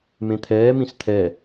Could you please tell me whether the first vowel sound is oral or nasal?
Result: nasal